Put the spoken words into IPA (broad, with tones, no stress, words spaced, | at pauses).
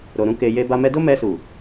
ɾo˨ɾũ˧ ke˨je˧ba˧mɛ˦ do˦mɛ˧su˨